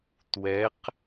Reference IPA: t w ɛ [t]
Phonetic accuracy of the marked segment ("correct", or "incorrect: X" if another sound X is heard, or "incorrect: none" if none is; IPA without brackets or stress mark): incorrect: q